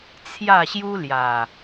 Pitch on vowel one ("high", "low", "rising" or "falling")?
falling